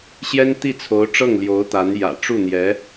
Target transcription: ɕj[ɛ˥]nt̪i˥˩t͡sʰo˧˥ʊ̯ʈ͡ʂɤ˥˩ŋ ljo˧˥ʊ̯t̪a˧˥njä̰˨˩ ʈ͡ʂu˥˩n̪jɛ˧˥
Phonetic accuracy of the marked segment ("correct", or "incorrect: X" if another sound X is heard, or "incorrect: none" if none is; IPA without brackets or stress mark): correct